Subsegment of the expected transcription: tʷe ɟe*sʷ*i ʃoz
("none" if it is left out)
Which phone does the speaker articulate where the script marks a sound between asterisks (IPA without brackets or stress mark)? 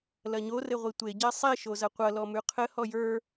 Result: sˤ